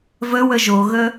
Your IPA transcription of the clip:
vəwə ʒoɣə

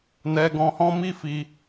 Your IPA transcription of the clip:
nɛ˧ɡɔ̃˧hɔ̃˦ mi˦fi˧

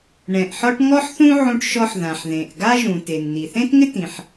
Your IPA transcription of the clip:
ɳɛ̃˩ʔħɔ˥ʈ ŋɔ˥ħθũ˥ ʕũ˥ʈʃɔ˥ħ ðã˩ħðẽ˩ʔ ɡa˥ʒũ˩ te˩nn̪i˩θẽ˥tŋɪ˥t ĩ˩ħ

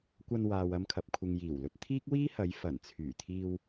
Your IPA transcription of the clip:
kʷɐ˧nwaː˨wɐ˧mkʰɐ˨p̚ kʷʰɪ˨ŋjiː˨˩wlɵ˧t̚ t̪ʰiː˥k̚wiː˥hɐ˨˧j fɐ˨˩nt͡sʰyː˨˩t̪ʰiː˧w

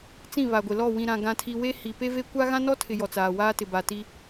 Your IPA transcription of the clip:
t͡sĩ˦˨βa˨ɡʷɪ˨lɔ˦˨ wĩ˨ɾã˨ ɡã˨tʰi˨ we˦hi˨ pe˦ve˦kʷa˦ ɣã˦nɔ˦tʰɪ˨ jɔ˨t͡saː˨waː˦tɪ˨ ba˨ti˦

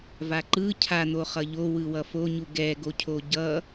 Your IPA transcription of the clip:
vaǃɯ cʰan̪o χʌʎo wɯwʌfoɲu ɡɛɡocʰo ɟʌ

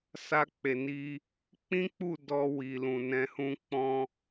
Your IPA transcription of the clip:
sa˧k͡pe˨ni˧ | k͡pĩ˦k͡pu˦˨ dɔ˧ wi˨lũ˨nɛ̃˧hũ˦ k͡pɔ̃˦

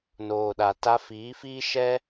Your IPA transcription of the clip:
noː˨ɗa˨ ta˧fiː˨˦fiː˦ ʃɛ˦

